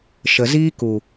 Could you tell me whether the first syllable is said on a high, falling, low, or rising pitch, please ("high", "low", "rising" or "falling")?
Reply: low